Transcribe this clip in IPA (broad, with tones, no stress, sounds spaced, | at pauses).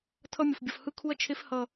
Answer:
tʰ ʌ˦ mʲ o˨ f bʲ ʌ˨ f h ɯ˦ kʰ u˦ ɐ̯ t͡ʃʰ e˦ f h ʌ˦˨